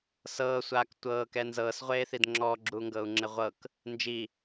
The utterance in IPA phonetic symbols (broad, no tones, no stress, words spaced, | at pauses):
sɤːsʷaːk tʷɤːkɛ nzɤːsʁʷeːθid ŋ͡ǁɔːɡ͡ǁuːŋɡɤːu̯ŋ͡ǁe ʁʷɤk | nd͡ʒi